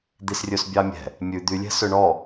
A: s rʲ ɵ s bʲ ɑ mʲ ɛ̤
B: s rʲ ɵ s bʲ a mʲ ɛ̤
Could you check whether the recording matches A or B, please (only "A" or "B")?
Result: A